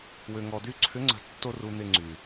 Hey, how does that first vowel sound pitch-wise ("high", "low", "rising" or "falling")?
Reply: low